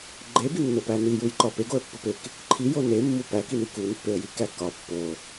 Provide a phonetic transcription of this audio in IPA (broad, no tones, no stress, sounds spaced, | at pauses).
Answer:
ɡ͡ǃ e b i nː o p æ n i j u j ǃ ɒ p e ɡ o ə̯ pː u p e k | ǃʰ i j o n e mː u p æ k i n i k u n pː e ə̯ j i k æ k ɒ pː o